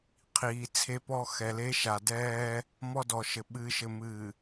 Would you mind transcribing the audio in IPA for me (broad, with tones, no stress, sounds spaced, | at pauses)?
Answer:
qʰ iː˨ t͡sʰ e˦ p ɔ˦ x ɛ˨ l e˦ ʃ a˨ d ɛː˦ | m ɔ˦ d ɔ˨ ʃ ɘ˨ ɓ ɨː˨ ʃ ɘ˨ m ɨː˨